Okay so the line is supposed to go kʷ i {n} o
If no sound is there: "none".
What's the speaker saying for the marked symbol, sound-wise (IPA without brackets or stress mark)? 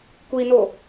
n